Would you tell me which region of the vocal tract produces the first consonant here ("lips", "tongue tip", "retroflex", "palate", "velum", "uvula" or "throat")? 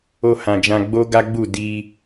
throat